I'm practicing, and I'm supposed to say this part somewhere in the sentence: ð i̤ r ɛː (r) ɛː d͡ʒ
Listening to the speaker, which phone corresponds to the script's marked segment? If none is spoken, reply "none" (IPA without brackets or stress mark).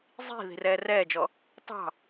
r